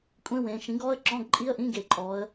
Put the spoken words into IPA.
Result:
kʷʼ ẽ˧˥˧ w ẽː˩˧ ʃ ĩ˩˥ ɡ ɔ˧˥˧ ə̯ ǁ ɔ̃˧˥˧ ɡ ǃʼ i˧˥˧ ə̯ ʔ ĩ˧˥˧ ɡ e˧˩˧ ǃʼ ɔː˩˧ ə̯

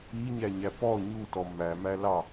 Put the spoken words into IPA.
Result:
i ɲ æ ɲ æ p ɔ ɲ u t ɔ m æ m æ l ɑ

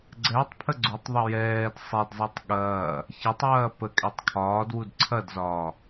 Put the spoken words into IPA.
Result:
ɡ͡ǀ ɛ tˤ pʰ ə ɡ͡ǀ u tˤ ðˤ ə j ɛː d sˤ ɛ d zˤ ɛ tˤ ɠ ɐː | ç ɐ tˤ j ɐː p ə kʼ ɛ tˤ kʰ ɒː d w u d ǀʰ ɐ d z ɒː

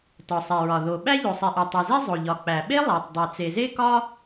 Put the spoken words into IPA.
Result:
t ɒ˩ sˤ e˩ ɹ ɒ˩ ð o˩ ɓ æ˥ ʎ o˩ sˤ i˩ ʔ o˩ tˤ u˩ z e˥ zˤ o˩ ʎ ɒ˩ k͡p æ˩ ɓ e˥ lˠ æ˩ tˤ dˤ e˩ t͡s e˩ z e˥ k ɒ˥

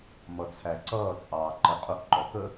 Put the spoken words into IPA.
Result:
m ʌ t͡sʰ æ ǀ ʌː t͡sʼ ɑː ǃ ə qʼ ʊ ʔ ǃ ɔ k ə

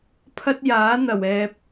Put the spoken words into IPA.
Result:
pʰ ɐ˥ t̚ j aː˨˥ n̪ ɐ˨˩ w ɛː˨ p̚

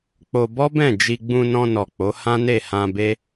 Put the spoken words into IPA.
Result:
k͡p o˧ b ɔ˦ b ɛ̃˦˨ d͡ʒ i˧ ɡ͡b ũ˧ n ɔ̃˧ n ɔ˨ k͡p o˨˦ h ã˦ n e˦˨ h ã˧ b e˦

